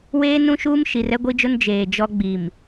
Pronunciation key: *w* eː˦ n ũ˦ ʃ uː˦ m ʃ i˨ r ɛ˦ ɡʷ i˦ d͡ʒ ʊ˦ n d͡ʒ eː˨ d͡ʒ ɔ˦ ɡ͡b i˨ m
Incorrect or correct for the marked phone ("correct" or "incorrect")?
correct